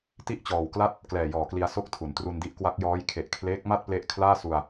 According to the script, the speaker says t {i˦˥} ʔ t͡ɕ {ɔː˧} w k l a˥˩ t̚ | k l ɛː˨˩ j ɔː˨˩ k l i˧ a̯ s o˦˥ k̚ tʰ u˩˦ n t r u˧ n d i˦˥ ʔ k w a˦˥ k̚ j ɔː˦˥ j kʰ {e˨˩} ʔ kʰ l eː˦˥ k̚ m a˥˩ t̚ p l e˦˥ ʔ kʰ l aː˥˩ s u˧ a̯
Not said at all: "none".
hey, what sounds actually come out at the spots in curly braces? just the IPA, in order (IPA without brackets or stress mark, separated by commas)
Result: i˥˩, ɔː˨˩, e˨˩